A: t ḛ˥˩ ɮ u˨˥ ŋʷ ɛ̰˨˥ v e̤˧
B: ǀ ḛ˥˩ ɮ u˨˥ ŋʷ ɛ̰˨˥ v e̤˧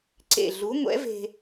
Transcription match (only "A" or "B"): B